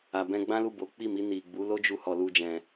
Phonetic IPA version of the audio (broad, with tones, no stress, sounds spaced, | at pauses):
a˧ b ɛ̃˦ ɡ͡b ã˦ l u˦˨ b o˨˦ k͡p i˦˨ m i˧ n i˨ ɡ͡b u˨˦ l o˦ d͡ʒ u˧ h ɔ˧ l u˦ d͡ʒ ɛ̃˧